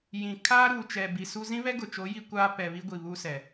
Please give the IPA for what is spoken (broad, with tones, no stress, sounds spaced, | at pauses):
j ĩ˨ kʰ aː˦ ɾ uː˨ t͡ʃ ɛ˨ b i˨ s u˦ z ĩ˦ β ɛ˦ ɡ ʊ˨ t͡ʃ o˨˦ j i˦ kʷ aː˦ p ɛ˨ β i˦ ɡʷ i˨ β u˦ s ɛ˨